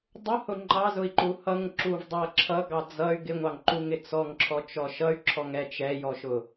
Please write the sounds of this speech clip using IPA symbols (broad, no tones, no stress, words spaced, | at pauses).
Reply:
dˤʊhʊ ŋ͡ǃɑzʊi̯ǃu hʌŋǁuv dˤʌ ǁʰʌɡɑ d͡zʌy̯ ɡɪŋʷɑŋǃuŋɪ t͡sɔŋǁʰɔt͡ʃɔ ʃʌy̯ǁʰɔŋɛ t͡ʃɛjɔʃʊ